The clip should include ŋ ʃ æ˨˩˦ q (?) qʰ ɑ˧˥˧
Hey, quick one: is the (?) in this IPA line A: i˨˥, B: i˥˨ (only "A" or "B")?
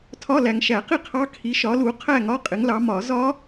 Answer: B